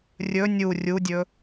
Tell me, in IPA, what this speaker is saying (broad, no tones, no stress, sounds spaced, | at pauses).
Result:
rʲ ɵ nʲ u rʲ u dʲ ɵ